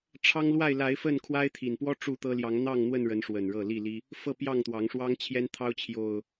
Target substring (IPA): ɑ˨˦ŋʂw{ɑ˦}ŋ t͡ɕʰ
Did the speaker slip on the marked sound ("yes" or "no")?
no